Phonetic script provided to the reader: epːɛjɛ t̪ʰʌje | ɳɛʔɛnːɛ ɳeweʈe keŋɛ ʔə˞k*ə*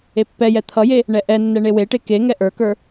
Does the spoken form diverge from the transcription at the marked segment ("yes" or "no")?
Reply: yes